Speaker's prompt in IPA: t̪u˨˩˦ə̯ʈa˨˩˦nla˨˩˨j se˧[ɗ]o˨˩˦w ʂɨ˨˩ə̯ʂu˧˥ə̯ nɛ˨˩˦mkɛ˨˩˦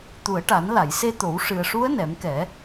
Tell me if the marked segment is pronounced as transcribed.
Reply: no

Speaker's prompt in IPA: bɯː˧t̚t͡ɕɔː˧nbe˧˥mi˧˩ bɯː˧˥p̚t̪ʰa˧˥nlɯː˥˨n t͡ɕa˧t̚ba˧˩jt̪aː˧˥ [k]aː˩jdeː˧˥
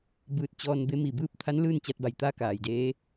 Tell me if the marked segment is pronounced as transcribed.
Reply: yes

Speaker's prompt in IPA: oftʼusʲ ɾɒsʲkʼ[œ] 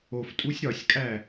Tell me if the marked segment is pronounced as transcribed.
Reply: no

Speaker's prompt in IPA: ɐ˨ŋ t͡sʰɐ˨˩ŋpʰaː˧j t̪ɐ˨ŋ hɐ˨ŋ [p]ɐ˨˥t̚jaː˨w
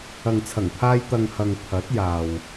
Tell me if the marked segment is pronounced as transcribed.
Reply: no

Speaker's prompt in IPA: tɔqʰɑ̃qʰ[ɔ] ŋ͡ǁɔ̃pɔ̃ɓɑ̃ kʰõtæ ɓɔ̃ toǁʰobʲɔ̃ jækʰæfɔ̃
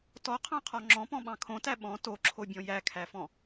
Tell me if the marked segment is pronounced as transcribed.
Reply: yes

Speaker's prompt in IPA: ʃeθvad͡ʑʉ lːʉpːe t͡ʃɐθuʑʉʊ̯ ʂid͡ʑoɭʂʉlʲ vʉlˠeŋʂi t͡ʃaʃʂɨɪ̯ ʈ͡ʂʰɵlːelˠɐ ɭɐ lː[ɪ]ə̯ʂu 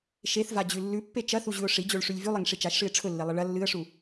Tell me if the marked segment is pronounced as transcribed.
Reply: no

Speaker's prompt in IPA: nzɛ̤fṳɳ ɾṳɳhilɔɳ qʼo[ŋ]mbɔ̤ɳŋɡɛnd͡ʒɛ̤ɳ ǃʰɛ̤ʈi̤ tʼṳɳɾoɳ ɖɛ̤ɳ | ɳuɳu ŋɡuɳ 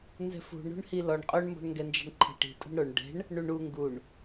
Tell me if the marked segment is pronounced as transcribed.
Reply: no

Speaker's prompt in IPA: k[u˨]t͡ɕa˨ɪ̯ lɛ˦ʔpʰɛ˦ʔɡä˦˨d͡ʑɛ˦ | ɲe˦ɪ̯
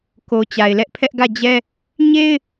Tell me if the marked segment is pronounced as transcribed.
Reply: no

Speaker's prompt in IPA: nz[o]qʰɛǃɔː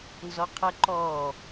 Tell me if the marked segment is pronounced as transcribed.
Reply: no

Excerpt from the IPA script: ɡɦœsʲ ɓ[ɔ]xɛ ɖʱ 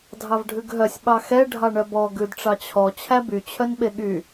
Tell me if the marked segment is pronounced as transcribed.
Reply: no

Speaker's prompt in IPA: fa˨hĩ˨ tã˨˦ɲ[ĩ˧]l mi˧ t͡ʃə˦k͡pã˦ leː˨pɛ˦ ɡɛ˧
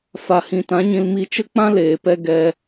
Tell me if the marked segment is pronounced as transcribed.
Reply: yes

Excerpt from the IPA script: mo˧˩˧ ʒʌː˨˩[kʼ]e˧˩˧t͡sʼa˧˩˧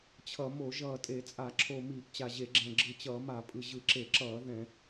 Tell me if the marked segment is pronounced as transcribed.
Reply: no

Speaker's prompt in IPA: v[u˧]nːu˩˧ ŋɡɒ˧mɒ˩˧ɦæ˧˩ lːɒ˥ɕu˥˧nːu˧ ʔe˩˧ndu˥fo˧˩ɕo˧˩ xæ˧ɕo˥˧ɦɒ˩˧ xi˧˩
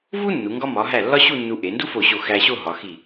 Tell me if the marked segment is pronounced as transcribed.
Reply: no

